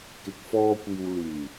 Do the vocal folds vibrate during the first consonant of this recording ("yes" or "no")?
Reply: no